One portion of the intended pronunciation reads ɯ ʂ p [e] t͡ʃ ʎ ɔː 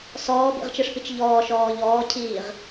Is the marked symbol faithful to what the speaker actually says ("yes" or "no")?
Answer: no